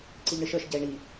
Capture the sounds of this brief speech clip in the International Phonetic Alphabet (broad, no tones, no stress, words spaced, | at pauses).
ǀɨʎɳɨʃə˞ʃ ɟɛɪ̯ɳi